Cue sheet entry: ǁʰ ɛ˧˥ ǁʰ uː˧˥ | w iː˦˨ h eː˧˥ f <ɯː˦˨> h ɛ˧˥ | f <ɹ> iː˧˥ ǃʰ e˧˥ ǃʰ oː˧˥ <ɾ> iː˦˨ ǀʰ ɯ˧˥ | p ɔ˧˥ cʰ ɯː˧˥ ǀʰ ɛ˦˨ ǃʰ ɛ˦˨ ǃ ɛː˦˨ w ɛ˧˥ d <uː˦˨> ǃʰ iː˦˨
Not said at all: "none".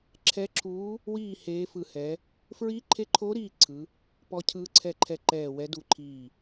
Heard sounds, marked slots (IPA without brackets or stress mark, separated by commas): ɯ˦˨, ɹ, ɾ, u˦˨